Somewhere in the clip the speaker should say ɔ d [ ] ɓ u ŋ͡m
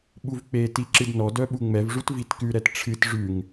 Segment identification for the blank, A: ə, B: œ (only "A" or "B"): B